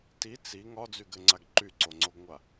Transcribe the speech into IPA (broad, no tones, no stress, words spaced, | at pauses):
ti t͡si ŋɒd͡zyɡɘŋ͡ǀaɡ ǃyǀoŋ͡ǀoɡŋʷa